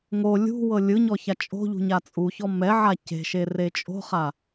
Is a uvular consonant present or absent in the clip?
present